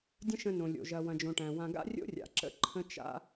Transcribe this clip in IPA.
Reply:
dʲ ə̃˦ ʃ ə̃˧ n õ˨ lʲ o̰˨ ʒ ɐ˨ w ɐ̃˨ d͡ʒ õ˨ ʈ æ̃˨ w ã˧ ɡ a̰˦ rʲ o̰˦ rʲ a̰˨ ǁ ə̰˦ ǃʰ ə̃˦ t͡ʃ a̰˦

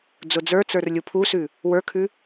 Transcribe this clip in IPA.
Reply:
d͡z ʊ d͡z ə˞ t͡s ə˞ r lʲ u pʰ u s ʉ | w ə˞ kʰ ʉ

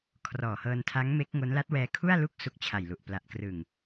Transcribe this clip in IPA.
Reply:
kʰ r ɔː˨˩ h ɤː˧ n tʰ a˦˥ ŋ m e˦˥ k̚ ŋ o˦˥ n l a˦˥ t̚ w ɛː˧ kʰ u˥˩ a̯ l u˥˩ k̚ s u˦˥ k̚ t͡ɕʰ a˨˩ j l u˨˩ ʔ p l a˨˩ ʔ k r ɯ˨˩ ŋ

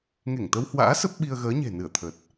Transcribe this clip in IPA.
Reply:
ŋ e˧˩ ŋ t̪ ə˧ w h w a̰ː˧˥ s ə˦˥ p̚ ɓ i˧ ə̯ ɣ əː˨˦ ɲ e̤˨˩ n ɨ˧˩ ə̯ t̪ʰ ə˨˩ t̚

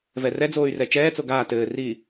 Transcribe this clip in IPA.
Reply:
v ɛ r ɛ d͡z oː y̯ r ɛ t͡ʃ ɛː t͡s o ɡ aː t ɘː r iː

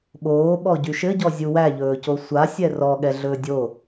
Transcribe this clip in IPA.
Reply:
ɓ oː ɓ ɔ ɟ y ʃ ɘ ɟ ɔ zʲ u w æ ʎ ɵː c o sʷ a sʲ ɛ r ɔ ɠ ɛ ɮ ɵː dʲ o

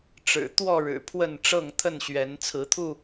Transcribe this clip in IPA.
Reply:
ʈ͡ʂ ɻ̩˨˩ t̪ w ɔ˥˨ ɻ ɻ̩˨˩ pʰ w ə˥˨ n ʈ͡ʂ ɤ˥˨ ŋ t̪ʰ ə˥˨ n ɕ ɥ ɛ˨˦ n t͡sʰ ɹ̩˨˦ t̪ʰ u˥˨

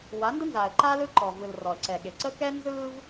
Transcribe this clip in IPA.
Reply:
w a˨˦ n d ə˦ n z aː˨ ə̯ ǃ aː˦ l ɯ˦ ǃ ɔ˨ v ɯ˨ l r ɔ˨ ə̯ ǀ ɛ˨ ɠ e˨ ǀ ə˦ k ɛ˦ n z ɯː˦ v

